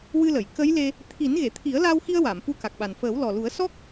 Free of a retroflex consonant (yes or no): yes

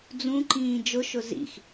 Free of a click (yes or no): no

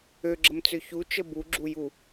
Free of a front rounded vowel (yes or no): no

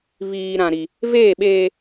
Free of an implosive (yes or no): no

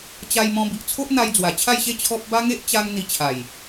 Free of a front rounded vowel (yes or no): yes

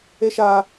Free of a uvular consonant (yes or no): yes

